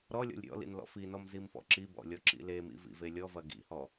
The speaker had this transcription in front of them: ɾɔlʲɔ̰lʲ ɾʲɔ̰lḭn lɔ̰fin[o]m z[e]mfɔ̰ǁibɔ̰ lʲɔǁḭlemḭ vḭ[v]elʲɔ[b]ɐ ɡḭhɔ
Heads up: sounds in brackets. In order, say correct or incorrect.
incorrect: ɔ, incorrect: i, correct, incorrect: v

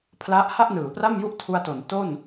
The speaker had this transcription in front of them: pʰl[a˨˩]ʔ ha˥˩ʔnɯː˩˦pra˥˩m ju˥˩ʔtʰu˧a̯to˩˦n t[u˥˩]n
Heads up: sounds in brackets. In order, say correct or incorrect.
incorrect: a˦˥, incorrect: o˥˩

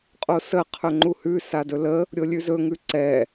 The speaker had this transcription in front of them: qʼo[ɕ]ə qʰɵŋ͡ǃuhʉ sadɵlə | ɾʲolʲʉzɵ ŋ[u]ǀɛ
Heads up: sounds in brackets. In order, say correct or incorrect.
incorrect: s, incorrect: ʉ

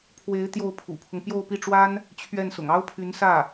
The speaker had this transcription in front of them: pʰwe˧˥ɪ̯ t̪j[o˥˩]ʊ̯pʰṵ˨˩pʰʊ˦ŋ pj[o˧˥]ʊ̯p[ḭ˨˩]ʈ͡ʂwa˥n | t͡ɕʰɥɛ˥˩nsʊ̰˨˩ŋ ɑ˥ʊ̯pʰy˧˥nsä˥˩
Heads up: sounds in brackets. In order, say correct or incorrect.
correct, incorrect: o˥˧, incorrect: i˥˩

